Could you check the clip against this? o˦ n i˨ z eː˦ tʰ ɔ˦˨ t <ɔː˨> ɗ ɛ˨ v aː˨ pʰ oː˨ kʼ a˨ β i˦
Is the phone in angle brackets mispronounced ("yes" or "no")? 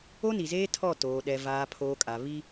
yes